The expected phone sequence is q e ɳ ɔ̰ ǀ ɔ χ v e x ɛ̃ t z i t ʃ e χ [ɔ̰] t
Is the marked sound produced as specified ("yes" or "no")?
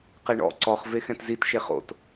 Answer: no